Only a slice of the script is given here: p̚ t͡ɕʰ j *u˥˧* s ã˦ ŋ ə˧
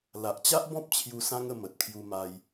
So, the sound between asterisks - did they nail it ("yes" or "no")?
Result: no